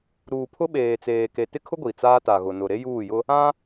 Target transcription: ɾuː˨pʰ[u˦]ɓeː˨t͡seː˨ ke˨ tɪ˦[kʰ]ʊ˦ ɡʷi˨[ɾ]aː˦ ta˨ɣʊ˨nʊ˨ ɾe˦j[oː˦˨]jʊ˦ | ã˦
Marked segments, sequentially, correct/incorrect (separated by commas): incorrect, correct, incorrect, incorrect